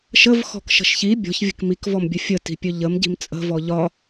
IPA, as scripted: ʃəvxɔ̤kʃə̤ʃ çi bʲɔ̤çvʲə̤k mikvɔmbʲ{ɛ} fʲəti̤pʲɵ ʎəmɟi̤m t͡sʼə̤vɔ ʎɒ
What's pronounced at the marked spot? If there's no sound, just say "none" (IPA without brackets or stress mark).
ə